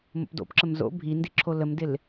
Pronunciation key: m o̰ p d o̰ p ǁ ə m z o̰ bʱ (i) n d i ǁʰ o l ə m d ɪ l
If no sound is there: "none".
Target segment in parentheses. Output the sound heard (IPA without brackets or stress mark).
i